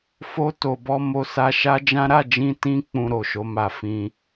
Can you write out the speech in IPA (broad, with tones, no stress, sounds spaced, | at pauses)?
f o˦ t o˧ b ɔ˧ m o˧ s a˧ ʃ a˦ d͡ʒ ã˦ ɾ a˦˨ d͡ʒ ĩ˧ t ĩ˦ k͡p ũ˧ ɾ o˨ ʃ o˨˦ m a˧ f ĩ˧